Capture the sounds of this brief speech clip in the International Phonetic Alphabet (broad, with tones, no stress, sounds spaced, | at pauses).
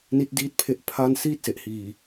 n i˦˥ t̚ d iː˥˩ t̚ pʰ e˦˥ ʔ pʰ a˥˩ n s iː˥˩ t̚ s e˨˩ ʔ h iː˨˩